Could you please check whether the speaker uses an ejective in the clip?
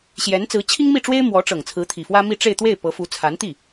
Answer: no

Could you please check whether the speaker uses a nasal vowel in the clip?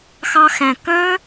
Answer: yes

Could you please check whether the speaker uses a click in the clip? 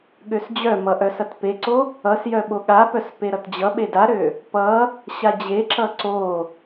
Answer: yes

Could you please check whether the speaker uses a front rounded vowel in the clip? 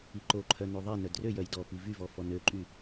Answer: yes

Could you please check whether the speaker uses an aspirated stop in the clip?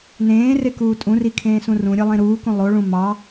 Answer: yes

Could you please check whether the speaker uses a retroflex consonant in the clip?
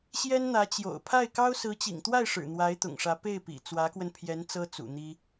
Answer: yes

